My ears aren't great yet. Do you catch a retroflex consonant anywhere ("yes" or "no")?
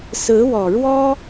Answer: yes